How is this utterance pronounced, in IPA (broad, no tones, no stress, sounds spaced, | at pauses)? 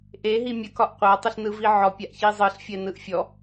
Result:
ʔ e ɦ i mʲ ə k ɒ ʔ qʷ a tˤ i ɬ n ɯ v i ʕ ɔ pʲ a ʔ ç i zˤ ɯ ɬ fʲ ɛ n ɯ ʔ fʲ ɔ